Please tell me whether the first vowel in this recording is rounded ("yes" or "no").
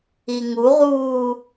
no